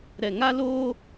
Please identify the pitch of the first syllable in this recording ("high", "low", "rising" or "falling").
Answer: low